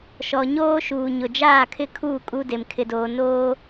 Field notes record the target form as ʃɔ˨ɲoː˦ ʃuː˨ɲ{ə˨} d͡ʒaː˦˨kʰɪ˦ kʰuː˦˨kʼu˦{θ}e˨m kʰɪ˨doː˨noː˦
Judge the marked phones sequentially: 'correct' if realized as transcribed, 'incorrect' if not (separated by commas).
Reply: incorrect, incorrect